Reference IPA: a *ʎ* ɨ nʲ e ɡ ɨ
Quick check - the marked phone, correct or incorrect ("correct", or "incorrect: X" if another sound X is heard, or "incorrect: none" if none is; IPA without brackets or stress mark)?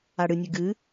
incorrect: ɽ